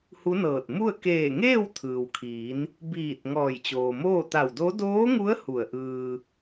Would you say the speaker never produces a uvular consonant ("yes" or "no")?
yes